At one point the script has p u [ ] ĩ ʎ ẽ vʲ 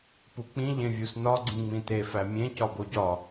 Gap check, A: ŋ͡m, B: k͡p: B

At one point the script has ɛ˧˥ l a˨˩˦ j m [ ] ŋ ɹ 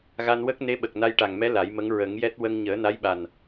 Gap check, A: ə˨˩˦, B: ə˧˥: B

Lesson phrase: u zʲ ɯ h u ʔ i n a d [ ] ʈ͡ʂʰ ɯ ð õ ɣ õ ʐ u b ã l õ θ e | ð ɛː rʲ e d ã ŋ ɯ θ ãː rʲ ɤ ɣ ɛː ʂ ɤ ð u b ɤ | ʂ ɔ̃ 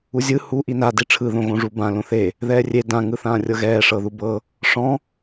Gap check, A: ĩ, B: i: B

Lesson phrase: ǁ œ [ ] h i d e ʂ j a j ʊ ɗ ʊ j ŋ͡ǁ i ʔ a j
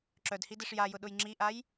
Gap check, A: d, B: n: A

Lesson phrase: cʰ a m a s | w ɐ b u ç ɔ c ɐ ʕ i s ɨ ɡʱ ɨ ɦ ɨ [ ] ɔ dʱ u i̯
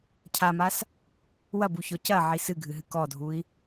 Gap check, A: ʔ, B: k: B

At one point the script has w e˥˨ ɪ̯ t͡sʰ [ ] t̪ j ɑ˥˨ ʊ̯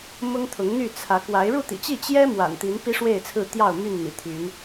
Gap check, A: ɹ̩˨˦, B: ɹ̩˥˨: B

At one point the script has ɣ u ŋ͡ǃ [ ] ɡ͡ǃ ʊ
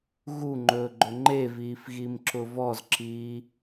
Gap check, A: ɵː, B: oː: A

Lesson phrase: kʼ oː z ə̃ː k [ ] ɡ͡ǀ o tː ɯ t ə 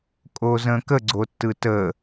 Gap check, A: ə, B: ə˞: A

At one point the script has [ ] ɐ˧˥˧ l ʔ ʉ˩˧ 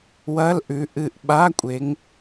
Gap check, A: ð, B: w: B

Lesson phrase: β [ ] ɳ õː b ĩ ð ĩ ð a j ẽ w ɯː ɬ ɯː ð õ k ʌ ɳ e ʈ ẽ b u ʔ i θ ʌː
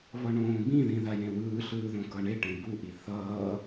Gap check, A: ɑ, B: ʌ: B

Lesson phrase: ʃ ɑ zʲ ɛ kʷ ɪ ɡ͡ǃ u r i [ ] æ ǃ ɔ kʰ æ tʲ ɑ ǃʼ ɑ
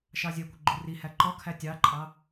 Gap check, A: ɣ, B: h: B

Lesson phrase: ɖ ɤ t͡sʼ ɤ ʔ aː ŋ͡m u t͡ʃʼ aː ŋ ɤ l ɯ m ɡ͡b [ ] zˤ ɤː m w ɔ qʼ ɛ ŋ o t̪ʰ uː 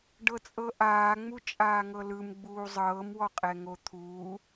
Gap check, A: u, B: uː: B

